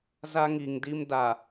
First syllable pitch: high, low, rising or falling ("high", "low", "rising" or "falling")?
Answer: high